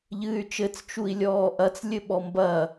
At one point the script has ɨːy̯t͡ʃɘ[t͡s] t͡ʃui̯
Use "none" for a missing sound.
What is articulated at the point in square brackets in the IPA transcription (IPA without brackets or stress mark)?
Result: t͡s